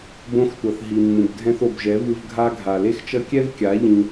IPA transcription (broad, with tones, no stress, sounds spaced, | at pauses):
b õ˧ x tʷ ʌ˨ θ ɦ i˨ mː ũ˨ b dʱ ɛ̃˧ θ o˨ b ʒ ɛ˨˦ v ɯ˧ v ɡʱ a˧ ɡʱ a˨ l e˦ x t͡ʃ ʌ˦ kʲ ɛ˦ v kʲ a˨˦ ʎ ĩ˧